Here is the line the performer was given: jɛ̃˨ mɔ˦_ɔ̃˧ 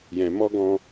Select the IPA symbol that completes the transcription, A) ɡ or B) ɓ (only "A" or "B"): A